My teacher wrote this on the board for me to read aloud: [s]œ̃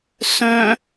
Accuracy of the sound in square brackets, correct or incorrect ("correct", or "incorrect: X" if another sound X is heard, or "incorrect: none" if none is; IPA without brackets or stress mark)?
correct